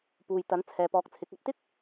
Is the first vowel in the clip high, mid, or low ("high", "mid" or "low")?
high